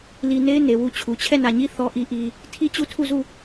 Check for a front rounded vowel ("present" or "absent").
absent